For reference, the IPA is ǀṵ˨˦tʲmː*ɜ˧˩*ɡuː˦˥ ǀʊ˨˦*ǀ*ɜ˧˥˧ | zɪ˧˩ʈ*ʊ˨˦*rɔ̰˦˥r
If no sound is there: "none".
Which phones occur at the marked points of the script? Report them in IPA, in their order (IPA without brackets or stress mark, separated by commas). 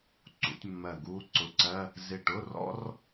ɜ˧˩, ǀ, ʊ˧˥˧